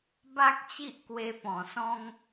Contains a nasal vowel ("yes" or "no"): yes